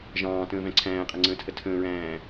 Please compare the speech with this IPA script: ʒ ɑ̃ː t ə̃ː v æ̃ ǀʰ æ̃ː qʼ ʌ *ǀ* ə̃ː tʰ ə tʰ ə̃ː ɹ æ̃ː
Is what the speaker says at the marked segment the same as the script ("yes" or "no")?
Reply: no